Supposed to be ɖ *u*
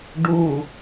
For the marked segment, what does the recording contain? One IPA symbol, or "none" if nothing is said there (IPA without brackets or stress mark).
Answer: u